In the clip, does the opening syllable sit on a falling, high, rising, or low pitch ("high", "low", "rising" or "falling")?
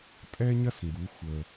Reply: high